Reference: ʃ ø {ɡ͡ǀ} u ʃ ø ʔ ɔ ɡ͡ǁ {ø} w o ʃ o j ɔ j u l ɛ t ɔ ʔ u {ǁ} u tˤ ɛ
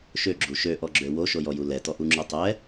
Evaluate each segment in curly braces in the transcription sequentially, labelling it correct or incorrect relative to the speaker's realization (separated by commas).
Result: incorrect, correct, incorrect